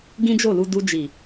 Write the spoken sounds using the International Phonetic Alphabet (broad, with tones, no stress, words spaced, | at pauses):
ɡĩ˦d͡ʒo˦˨lu˧ du˧d͡ʒi˨